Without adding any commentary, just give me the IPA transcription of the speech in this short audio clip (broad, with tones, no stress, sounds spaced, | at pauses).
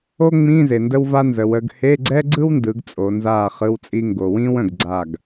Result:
o˥ ŋ͡m ĩ˧˥˧ z e˩ n d ə˥ w v a˥ n z ə˩˧ w ə˩˧ ɡ h e˧˥˧ ɡ͡ǀ ɛ˥ ɡ͡ǀ ɯ˥ w n d ɯ˩˧ ɡ t͡sʼ o˩˧ n z aː˥˩ χ ɯ˧˥˧ w t͡sʼ i˥ ŋ ɡ o˩ w ĩː˥ w ə̃˩ ɡ ɡ͡ǀ a˥˩ ɡ